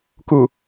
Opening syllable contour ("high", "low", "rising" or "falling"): low